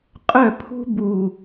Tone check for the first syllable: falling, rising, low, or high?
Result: falling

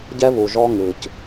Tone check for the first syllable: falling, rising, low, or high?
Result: high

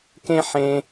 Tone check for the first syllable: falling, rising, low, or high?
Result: high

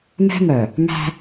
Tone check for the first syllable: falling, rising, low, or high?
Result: high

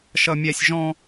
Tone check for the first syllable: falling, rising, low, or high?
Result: high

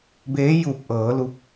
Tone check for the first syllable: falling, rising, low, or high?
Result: rising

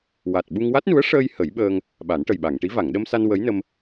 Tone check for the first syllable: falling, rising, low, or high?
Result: low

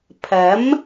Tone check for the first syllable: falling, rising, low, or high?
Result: rising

